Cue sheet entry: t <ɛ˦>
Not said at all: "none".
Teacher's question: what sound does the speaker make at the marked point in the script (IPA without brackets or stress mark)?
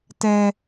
ɛ˦